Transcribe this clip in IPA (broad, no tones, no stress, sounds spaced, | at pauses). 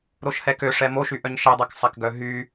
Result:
ɾ o ʃ h ɛ k ø ʂ ɛ m o ʃ y ʔ œ ɲ ʃ i dˤ ɛ k sˤ a k ɡ œ ɦ y